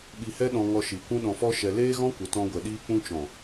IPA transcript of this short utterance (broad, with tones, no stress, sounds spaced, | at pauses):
ɓ i˧ h ɛ˦ ɗ ɔ̃˧ ŋ ɔ˧ ʃ i˨ kʷ ũ˦ ɗ ɔ̃˧ f ɔ˦ ʃ ɛ˧ l eː˦ ɣ ɔ̃˦ kʷ ə˨˦ t ɔ̃˧ ɡʷ ɛ˨ ɗ iː˧ k͡p ũ˧ t͡ʃ ɔ̃˨